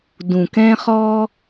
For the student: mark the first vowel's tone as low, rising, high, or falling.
low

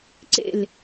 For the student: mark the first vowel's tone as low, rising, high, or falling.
falling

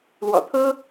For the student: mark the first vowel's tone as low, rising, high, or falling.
low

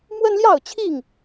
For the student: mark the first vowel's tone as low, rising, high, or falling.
high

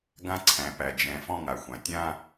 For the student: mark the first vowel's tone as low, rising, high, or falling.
high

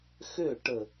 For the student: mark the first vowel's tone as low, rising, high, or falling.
falling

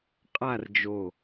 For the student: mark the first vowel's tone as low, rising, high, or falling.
falling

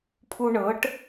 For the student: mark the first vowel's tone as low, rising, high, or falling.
high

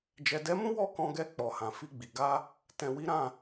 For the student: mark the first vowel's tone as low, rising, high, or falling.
low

